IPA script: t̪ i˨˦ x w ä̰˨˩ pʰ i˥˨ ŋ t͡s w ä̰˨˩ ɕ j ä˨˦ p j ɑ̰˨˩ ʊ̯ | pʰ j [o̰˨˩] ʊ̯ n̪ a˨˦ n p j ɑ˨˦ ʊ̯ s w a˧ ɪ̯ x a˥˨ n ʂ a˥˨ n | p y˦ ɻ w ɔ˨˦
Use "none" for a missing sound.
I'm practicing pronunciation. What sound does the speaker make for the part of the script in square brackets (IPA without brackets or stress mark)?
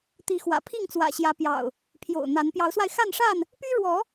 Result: o̰˨˩